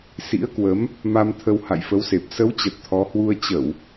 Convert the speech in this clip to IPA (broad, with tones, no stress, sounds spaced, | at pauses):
s ḭ˧˥ ə̯ k w ə˨˦ m | m a˧ m t̪ʰ ə˧ w h a̰˧˨ j f ə˨˦ w s e˨˩ p̚ s ə˨˦ w t͡ɕ ə˨˩ t̚ t̪ʰ ɔ˨˦ h w u˧ ə̯ t͡ɕ ə˧˩˨ w